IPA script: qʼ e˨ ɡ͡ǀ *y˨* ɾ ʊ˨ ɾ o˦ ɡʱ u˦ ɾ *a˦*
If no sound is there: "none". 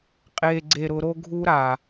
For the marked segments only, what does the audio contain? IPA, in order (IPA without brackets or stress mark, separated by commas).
e˨, a˨